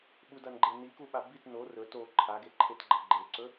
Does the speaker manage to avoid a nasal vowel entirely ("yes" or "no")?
yes